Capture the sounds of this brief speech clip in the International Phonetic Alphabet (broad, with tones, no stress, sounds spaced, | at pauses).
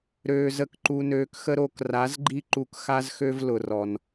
ɾ øː˧ z ə˧ k ǃ u˧ n øː˧ k x ə˦ ɾ o˧ k r a˨˦ z ɡ͡ǃ i˦ ǃ u˧ k x a˦ z x ø˦ v l ʊ˨ r ɔ˨ n